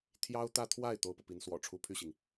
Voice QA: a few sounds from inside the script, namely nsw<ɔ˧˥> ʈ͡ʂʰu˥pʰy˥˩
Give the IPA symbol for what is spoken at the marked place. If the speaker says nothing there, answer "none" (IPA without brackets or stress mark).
ɔ̰˨˩